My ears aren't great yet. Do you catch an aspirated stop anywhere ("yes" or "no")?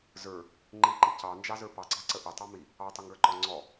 no